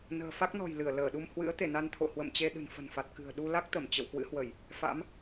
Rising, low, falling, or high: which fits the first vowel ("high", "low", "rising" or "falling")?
low